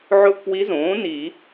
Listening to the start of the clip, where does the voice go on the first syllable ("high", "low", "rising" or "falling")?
falling